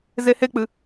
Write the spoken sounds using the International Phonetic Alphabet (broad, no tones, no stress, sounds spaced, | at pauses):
z e h e k͡p ɨ